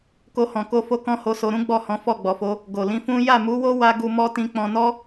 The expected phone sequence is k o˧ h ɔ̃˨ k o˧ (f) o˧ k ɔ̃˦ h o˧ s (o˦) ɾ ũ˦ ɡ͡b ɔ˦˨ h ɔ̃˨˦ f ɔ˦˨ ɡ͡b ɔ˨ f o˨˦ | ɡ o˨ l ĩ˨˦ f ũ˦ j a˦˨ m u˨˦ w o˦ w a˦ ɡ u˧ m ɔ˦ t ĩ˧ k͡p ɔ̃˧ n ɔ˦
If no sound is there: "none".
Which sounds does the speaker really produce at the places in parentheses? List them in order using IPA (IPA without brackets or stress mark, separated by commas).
f, o˧